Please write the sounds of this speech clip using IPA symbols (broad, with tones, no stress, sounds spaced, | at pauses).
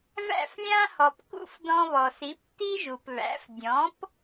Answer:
v æ̰˥˩ f lʲ ã˥ h ɔ˩ p k ṵ˥˩ f d ɔ̃˧ β ɔ˩ s i˩˥ p t i˥ ʒ u˩ p β æ̰˩˥ f dʲ ɔ̃˩˥ p